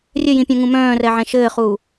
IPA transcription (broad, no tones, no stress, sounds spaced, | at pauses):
rʲ ɘ j ĩ pʲ œ̃ ŋ ũ m œ̃ː r ɛ ʕ ɛ̃ ʃ ɘː χ uː